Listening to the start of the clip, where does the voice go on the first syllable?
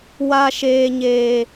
high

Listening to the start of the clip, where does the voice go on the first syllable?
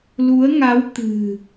rising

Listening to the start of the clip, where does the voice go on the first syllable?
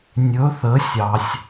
rising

